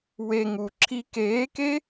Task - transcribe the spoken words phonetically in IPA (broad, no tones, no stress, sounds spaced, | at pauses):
w e ŋ u ǁʰ i k eː k e